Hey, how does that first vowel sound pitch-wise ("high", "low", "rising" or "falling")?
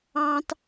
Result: high